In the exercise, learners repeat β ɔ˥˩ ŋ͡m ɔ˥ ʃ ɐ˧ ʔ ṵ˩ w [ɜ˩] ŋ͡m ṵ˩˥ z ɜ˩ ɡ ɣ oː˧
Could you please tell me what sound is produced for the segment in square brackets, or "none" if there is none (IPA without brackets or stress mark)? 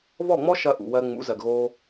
ɜ˧